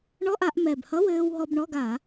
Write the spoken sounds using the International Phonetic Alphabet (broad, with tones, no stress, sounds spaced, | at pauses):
ɳ ɔ˧˥˧ ʔ a˧˩˧ ʔ m ɛ˨˩ b h ʌ˧˥˧ w ɘː˧ w ɦ ɔ˧ b ɳ ɔ˧˥˧ ɡ a˧˩˧